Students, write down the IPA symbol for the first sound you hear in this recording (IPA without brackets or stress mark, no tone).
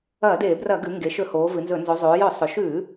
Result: ɐː